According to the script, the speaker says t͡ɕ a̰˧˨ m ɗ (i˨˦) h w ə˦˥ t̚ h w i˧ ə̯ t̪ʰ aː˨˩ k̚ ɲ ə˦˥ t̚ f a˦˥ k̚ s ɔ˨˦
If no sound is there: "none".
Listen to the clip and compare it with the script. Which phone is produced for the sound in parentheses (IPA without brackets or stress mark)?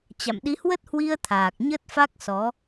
i˨˦